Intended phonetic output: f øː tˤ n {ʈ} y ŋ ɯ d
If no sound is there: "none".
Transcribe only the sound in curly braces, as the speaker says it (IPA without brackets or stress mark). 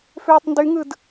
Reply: d